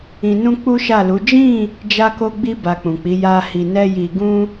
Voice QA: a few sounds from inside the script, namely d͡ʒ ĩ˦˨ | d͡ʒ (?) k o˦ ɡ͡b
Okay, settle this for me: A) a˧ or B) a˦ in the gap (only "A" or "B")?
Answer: B